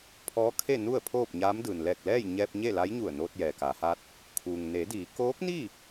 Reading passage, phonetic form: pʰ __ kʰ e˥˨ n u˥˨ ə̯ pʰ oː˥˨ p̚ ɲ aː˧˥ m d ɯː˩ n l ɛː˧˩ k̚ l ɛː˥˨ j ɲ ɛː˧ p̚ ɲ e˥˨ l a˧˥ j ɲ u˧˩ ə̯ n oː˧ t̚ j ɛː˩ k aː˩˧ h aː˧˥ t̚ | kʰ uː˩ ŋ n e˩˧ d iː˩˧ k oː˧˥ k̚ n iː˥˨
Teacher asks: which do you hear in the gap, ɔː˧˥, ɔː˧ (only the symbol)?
ɔː˧˥